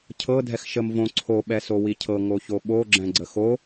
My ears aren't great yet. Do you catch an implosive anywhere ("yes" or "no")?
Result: yes